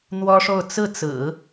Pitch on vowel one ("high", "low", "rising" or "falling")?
high